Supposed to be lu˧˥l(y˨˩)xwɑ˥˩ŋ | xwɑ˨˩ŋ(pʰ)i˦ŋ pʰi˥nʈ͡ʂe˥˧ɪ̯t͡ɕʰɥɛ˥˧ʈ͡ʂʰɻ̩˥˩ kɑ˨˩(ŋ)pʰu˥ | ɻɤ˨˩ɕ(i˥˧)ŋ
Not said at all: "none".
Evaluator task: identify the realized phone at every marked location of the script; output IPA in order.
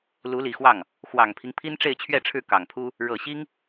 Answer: i˨˩, pʰ, ŋ, i˥

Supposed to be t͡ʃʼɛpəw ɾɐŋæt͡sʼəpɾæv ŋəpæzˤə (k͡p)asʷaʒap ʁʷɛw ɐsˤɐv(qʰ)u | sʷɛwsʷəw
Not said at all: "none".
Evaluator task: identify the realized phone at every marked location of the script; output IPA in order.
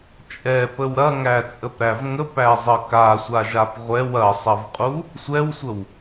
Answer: k, qʼ

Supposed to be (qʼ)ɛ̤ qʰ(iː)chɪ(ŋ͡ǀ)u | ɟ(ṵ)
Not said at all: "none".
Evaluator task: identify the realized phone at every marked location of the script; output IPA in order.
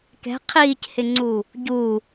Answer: k, iː, ŋ͡ǀ, u

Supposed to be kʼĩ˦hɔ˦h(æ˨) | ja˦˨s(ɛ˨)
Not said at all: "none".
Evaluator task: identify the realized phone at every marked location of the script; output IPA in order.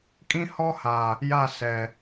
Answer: a˨, ɛ˨

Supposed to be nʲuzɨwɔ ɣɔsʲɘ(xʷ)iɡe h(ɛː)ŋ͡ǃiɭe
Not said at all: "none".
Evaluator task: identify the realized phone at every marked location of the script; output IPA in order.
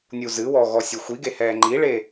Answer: xʷ, ɛː

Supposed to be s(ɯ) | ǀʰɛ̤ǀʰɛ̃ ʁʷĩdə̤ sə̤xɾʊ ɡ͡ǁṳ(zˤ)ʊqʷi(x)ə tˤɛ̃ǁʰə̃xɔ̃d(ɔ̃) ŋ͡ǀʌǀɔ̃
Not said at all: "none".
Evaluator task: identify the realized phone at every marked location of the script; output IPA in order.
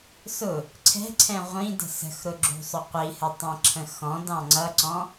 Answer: ʊ, sˤ, h, ɑ̃

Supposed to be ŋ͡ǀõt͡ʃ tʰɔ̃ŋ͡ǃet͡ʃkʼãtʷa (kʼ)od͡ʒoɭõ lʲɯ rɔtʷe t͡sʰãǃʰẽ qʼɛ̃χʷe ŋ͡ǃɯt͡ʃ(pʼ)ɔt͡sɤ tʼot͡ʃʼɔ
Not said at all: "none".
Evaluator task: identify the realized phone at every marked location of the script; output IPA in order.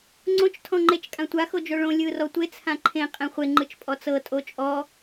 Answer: x, pʼ

